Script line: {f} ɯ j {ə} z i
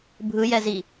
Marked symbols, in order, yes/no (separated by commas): no, no